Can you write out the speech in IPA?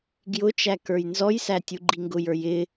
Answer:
ɡ j ʊ t͡ʃ æ k ə˞ j n z ɔ j s æ tʲ u ɡ͡ǃ i ŋ ɡ ʊ j ə˞ j ɪ

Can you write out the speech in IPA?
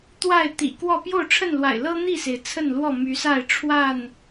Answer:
t̪ w a˥˨ ɪ̯ t̪ ḭ˨˩ k w ɔ˥˨ p j o˥˨ ʊ̯ ʈ͡ʂʰ ə˥˨ n l w a̰˨˩ ɪ̯ l ɤ˦ n̪ i˥˨ s e˩ ɪ̯ t͡sʰ ə˥˨ n l w ɔ˥˨ m y˨˦ s a˥˨ ɪ̯ ʈ͡ʂʰ w a˥˨ n

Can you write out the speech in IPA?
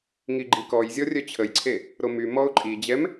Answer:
ŋ i ɡ͡ǃ i k ɔ j zʲ ɔ rʲ œ t͡ɕʰ ə j ǀʰ e | ɾ o m y m ɔ ʊ̯ ǃʼ i d͡ʑ ɛ m

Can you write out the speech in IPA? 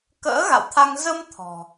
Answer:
k ə̰ː˧˥ ɣ a̰˧˨ w t̪ʰ a˧ ŋ z ə˧ m t̪ʰ ɔ̤˨˩

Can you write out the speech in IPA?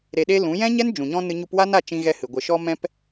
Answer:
ɾ e˧ ɗ e˦ l ũ˨˦ j ɛ̃˦ ɲ ɛ˦ n d͡ʒ ũ˨ ɲ ɔ̃˦ n ɨ˧ ɲ u˧ p w a˦ n a˦˨ t͡ʃ ĩ˧ ɣ ɛ˧ h ɨ˨ ɡʷ ə˨ ʃ ɔ˧ m ɛ̃˧ p

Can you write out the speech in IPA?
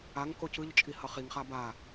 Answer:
a ŋ k o c ɯ ʎ t͡ʃʼ i h ʌ χ i ŋ χ a b a

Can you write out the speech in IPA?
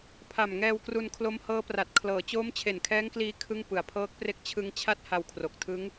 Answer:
pʰ a˨˩ m ŋ ɛː˧ w k r u˧ n kʰ l o˦˥ m h ɤː˦˥ p r a˨˩ t̚ kʰ l ɤː˩˦ t͡ɕ oː˦˥ m t͡ɕʰ e˨˩ n kʰ ɛː˦˥ ŋ k l iː˧ kʰ ɯ˥˩ ŋ p ɯ˩˦ a̯ pʰ ɤː˦˥ k̚ p r e˥˩ k̚ t͡ɕʰ ɯ˧ ŋ t͡ɕʰ a˦˥ t̚ h a˧ w kʰ r o˨˩ k̚ tʰ ɯ˦˥ ŋ

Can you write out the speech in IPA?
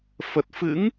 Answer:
f ə˨˩ t̚ f ɨ̰˧˥ ŋ

